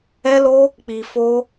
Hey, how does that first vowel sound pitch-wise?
high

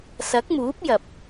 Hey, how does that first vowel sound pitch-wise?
rising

